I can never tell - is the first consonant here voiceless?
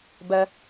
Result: no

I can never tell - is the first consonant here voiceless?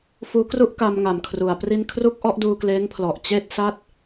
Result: yes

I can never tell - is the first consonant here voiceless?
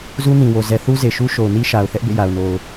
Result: no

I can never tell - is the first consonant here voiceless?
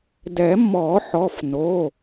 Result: no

